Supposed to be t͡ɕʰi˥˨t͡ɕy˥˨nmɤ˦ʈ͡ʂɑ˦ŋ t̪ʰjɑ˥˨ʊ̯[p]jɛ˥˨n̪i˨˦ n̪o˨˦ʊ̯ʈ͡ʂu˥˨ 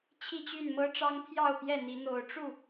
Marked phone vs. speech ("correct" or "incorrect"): correct